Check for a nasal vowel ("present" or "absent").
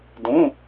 present